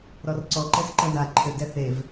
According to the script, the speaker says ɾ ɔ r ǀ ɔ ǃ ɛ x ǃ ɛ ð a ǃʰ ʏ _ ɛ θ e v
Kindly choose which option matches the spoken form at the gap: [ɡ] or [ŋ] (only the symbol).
ɡ